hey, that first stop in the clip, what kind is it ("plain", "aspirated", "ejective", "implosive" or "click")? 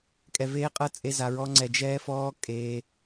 ejective